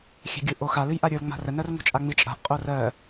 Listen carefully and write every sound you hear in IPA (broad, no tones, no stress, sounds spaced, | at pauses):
xʲ ɛ̤ ɡʲ ɯ ʔ o x a l ɨ j ʔ a ɾʲ ə˞ l ŋ͡m a̤ r ə n ɜ r ŋ o̤ t͡ʃʼ a ŋ͡m ɨ t͡ʃʼ a̤ ʔ qʼ o r ɜ